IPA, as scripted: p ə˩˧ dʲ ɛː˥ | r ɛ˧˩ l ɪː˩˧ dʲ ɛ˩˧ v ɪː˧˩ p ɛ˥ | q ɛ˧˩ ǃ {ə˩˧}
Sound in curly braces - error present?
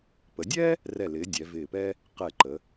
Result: no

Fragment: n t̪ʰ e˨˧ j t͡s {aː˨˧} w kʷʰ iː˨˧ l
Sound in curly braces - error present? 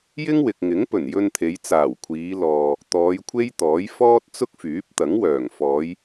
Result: yes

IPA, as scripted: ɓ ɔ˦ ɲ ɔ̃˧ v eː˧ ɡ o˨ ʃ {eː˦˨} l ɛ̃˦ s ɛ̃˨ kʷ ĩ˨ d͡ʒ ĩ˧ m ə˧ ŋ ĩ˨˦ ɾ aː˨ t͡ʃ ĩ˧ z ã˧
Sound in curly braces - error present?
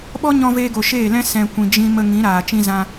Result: no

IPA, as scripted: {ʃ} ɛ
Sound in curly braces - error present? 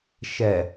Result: no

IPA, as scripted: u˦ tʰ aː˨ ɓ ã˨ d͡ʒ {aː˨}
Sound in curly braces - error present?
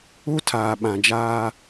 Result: yes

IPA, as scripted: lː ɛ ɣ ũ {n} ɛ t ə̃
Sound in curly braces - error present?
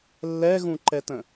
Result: yes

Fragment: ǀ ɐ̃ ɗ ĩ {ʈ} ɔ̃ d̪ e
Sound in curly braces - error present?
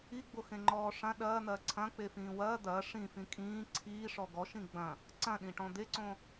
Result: no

